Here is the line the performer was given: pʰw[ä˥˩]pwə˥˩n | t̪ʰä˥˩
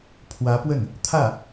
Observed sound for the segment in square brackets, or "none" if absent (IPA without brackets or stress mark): ä˧˥